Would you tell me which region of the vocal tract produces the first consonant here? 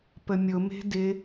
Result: lips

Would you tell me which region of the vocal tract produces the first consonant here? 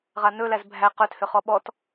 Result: uvula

